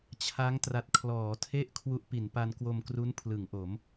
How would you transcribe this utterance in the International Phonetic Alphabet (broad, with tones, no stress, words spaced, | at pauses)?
t͡ɕʰa˦˥ŋtra˨˩t̚ kʰlɔː˩˦tʰe˥˩ʔ kʰwu˦˥ʔ pi˩˦npa˧n kwo˧mkru˦˥npʰlɯ˩˦ŋʔo˩˦m